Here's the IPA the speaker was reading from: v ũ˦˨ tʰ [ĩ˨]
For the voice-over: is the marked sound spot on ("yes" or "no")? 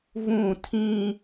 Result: no